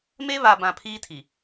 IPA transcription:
m e˦ β a˨ b ã˨ pʰ iː˦ tʰ i˨

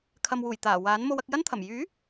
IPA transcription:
kʰ ɐ˨ m w uː˨˩ j t̪ aː˨˩ w aː˨˥ n m o˧ w ɐ˧ k̚ j ɐ˥ n t̪ʰ ɐ˨˩ m j yː˨˥

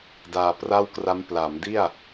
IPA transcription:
d aː˧ p r a˥˩ w k r a˦˥ m p l a˩˦ m d i˥˩ a̯

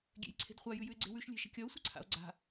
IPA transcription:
ɡʲ ḛ j ǀʰ e̤ d χʷ a j ʉ j ʉ e̯ ɡ͡ǀ e̤ w ʉ ʃ lʲ e̤ ʃ ə̤ kʲ ɒ o̯ sʷ ə ǀʰ a̰ o̯ ɡ͡ǀ a̤

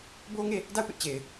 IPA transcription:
b o˦ ŋ e˦˨ | d a˦˨ ʊ̯ p ɪ˦ ʔ t͡ɕ e˨ ɪ̯

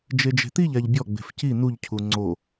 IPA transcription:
d͡ʒ e d͡ʒ e̤ t̪ i ʎ a ʎ bʲ ɔ ɡ͡b e̤ f c i n u ʎ cʰ u ŋ͡ǀ o

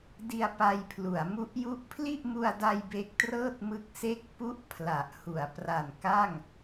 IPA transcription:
d i˧ a̯ p a˧ j pʰ l u˩˦ a̯ m u˦˥ ʔ j u˦˥ ʔ pʰ l i˥˩ ʔ m u˧ a̯ d a˧ j b e˦˥ k̚ t r ɤː˥˩ t̚ m ɯ˦˥ k̚ s e˥˩ k̚ p u˦˥ ʔ pʰ l a˨˩ ʔ h u˩˦ a̯ p r a˨˩ n k a˥˩ ŋ

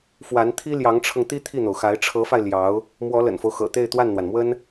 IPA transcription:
f w a˧˥ n t̪ʰ i˥ l j ɑ˧˥ ŋ ʈ͡ʂʰ ɤ˧ ŋ t̪ i˥ t̪ʰ i˥˩ n̪ o˩ ʊ̯ x a˧˥ ɪ̯ ʈ͡ʂʰ ɤ˧˥ f a˧ ɪ̯ l j ɑ˧˥ ʊ̯ | m w ɔ˧˥ l ə̰˨˩ n f o˦ ʊ̯ x ɤ̰˨˩ t̪ e˥˧ ɪ̯ t̪ w a˥˩ n n̪ w a˩ n m w ə˥ n

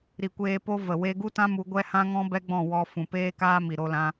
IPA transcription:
ɾ i˨ kʷ eː˧ p o˦ v ə˨ w e˧ ɡ u˦ t ã˦ m u˧ ɡʷ ɛ˦ h ã˦ ŋ ɔ̃˦ b ɛ˦ ɡ͡b ɔ̃˦˨ w ɔ˧ f ũ˨ p eː˦ k aː˦ m i˨ ɾ o˦ l ã˦

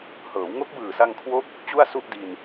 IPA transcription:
h ɤː˩˦ w ŋ o˦˥ k̚ b ɯː˨˩ s a˧ ŋ kʰ w o˦˥ k̚ | t͡ɕ u˥˩ a̯ s u˥˩ ʔ d i˧ n

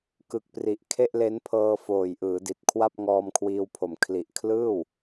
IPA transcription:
k ɯ˨˩ k̚ p r i˨˩ ʔ kʰ e˥˩ ʔ l e˦˥ n pʰ ɤː˧ f oː˨˩ j ʔ ɯː˩˦ d i˨˩ t̚ kʰ w a˥˩ p̚ ŋ ɔː˧ m kʰ w iː˧ w pʰ o˨˩ m kʰ l i˨˩ ʔ kʰ l ɯː˥˩ w

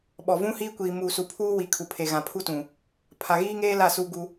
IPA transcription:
ɓ ɔ˨ v ũ˦ h iː˦ kʷ iː˨ m uː˨ s u˨ pʰ uː˦ w i˨ kʰ u˨ pʰ e˨ ɣ ã˨ pʰ u˦ t ũ˨ | pʰ a˨ ɣ iː˦ ŋ eː˦ l a˦˨ s uː˦ ɡ u˦

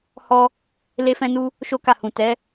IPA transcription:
h ɔ˦ | l e˦ f ɛ̃˦ n u˦ | ʃ o˦ k a˦˨ h ũ˨ t ɛ˨˦

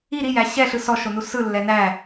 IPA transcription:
i ɾ i j æ ɕ ɛ ɬ ɯ s ɔ ʃ o n u s ɯ lː ɛ n æ

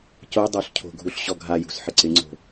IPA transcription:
c o dˤ o ɬ cʰ o̤ ɡʱ u ɬ ɕ ɔ ɡʱ a j ṳ s ħ ɪ ǀ ɪ ŋ͡ǀ o̤

